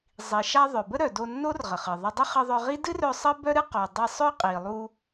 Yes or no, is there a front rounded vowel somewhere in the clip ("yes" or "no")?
yes